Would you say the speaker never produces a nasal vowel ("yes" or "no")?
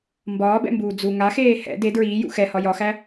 yes